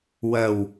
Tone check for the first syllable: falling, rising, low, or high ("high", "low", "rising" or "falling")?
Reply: low